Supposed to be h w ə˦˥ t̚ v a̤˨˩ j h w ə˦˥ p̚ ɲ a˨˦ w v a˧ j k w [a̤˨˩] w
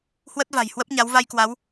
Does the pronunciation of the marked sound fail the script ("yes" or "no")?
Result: yes